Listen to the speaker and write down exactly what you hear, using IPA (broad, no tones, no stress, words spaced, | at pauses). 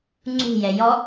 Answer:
ŋ͡ǀṳjɛ jɔ